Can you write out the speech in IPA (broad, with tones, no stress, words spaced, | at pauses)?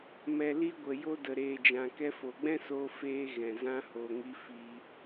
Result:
mɛ˨li˧ɡʷə˨ jo˧də˨ɾeː˨d͡ʒã˨ kɛ˧fo˨ɡ͡bɛ̃˦ so˧feː˧ ɣɛ̃˨zã˦ ho˧ŋi˦fiː˧